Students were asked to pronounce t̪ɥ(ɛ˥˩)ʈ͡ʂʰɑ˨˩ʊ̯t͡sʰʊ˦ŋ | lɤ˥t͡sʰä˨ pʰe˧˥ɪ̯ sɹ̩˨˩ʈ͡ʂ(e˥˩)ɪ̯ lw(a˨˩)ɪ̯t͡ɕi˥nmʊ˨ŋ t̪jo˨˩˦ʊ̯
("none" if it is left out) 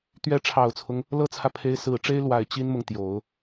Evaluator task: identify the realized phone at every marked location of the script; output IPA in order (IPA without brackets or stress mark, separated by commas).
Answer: ɛ˧˥, e˥, a˨˩